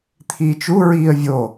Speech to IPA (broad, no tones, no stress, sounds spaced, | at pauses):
t̪ʰ iː t͡ʃ u ɹ iː ə̯ vʲ o